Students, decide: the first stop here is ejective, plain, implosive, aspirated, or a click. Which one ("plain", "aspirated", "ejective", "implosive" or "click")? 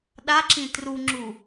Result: implosive